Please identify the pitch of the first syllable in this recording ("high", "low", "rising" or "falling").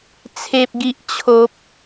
high